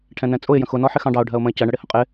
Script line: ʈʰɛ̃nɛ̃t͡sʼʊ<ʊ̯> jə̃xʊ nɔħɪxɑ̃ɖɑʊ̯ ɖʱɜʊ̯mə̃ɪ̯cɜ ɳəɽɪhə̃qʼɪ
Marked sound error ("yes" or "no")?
yes